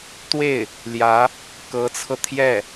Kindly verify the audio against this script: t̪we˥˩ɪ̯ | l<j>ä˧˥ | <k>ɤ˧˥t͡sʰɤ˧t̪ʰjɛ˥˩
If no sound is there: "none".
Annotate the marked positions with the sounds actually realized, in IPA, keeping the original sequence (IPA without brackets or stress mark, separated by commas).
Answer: j, k